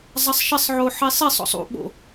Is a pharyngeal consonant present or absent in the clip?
present